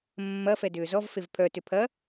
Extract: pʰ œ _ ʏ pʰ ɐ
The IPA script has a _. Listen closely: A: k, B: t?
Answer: B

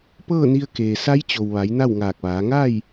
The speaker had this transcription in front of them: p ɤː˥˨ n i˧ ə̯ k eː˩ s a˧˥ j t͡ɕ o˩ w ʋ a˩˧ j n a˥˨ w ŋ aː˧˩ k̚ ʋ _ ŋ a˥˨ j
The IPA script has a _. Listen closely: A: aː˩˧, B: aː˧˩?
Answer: A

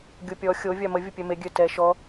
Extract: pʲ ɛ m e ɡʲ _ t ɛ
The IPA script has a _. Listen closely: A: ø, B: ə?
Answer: A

